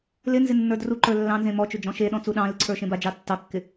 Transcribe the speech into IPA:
lɪnzɪ nːə˞druǃə˞ lːɑ̃nzẽ mɔt͡ʃɵ d͡ʒɔ̃ʃeɗɔ̃ t͡suɗɑ̃lɪ ǀʰə˞ʃẽbad͡ʒɑ tːɑkːɪ

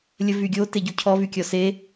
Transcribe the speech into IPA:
lʲəvyɡʲo teɟucʰɔ vykʲɔse

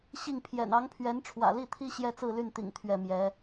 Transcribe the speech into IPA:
ɕi˥˩ŋpʰjɛ̰˨˩n ɑ˧˥ŋpʰɥɛ˧˥n ʈ͡ʂʰwä̰˨˩li˥˩t̪ʰi˥ ɕjɛ˥t͡sɹ̩˥˧ly˥˩nt̪ḭ˨˩ŋ t̪ʰɥɛ˥˩mjɛ˧˥

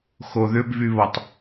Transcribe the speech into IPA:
xoðʏbvyβɔtˤ

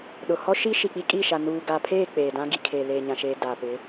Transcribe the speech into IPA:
ɗʊ˨ hɔ˦ ʃi˦ʃi˨ k͡pi˦kʼi˦˨ʃa˨ nuː˨ɡa˨pʰeː˦˨ k͡peː˨dã˦ɡi˨kʰe˨ leː˨ɲã˨ʃeː˨ da˨pɪ˨˦

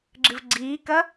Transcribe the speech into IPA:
ɡ͡ǁɨvɡ͡ǀiːkɐ

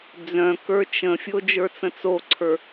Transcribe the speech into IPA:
d͡zœ̃ kə˞t͡ʃə̃fʲo d͡ʒə˞t͡sə̃t͡soǀʰə˞

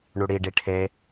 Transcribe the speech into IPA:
ɳuɽiɖi ʈʰe

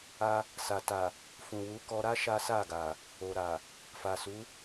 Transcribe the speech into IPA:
a˧ | sa˨ta˨ | fũ˨ wu˨˦ kɔ˧ɾa˦ ʃa˦sa˦˨ɡa˨ | o˨ɾa˨ | fa˨su˨˦

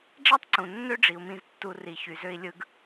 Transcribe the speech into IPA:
ɖ͡ʐæ˥tˤǀũ˩ nːø˦ɖ͡ʐi˩u̯mĩ˨z tːu˨ri˩ çy˩ zø˨i̯ lʲɯ˨ɡ

